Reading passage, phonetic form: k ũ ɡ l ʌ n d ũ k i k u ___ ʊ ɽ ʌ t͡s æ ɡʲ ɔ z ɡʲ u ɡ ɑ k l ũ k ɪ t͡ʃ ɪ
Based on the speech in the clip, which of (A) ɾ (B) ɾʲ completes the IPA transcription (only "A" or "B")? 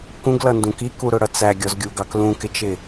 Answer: A